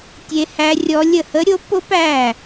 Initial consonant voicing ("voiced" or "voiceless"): voiceless